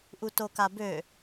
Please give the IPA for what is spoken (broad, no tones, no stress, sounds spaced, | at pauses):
ʔ u t o k a b ø